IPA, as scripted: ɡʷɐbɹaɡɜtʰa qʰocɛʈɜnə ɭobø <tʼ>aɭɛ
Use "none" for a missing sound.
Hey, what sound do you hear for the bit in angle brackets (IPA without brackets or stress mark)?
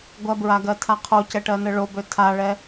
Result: tʰ